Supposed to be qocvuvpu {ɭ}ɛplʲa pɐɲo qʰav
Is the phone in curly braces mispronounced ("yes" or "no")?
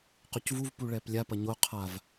no